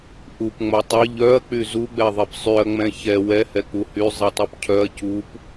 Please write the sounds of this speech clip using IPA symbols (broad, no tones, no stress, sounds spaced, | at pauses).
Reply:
ʔ u p ŋ͡m ɐ tˤ ɐ ʎ œ ɐ̯ k͡p y z u ɡ͡b ɛ ðˤ ɛ p sˤ y ɐ̯ ŋ͡m ɛ̃ ç ɛ w ɛ h ɛ k͡p u h y zˤ i tˤ u p cʰ œ ɐ̯ c u p